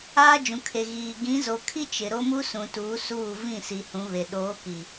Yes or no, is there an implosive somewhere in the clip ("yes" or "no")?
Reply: yes